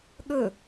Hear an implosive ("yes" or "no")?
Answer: yes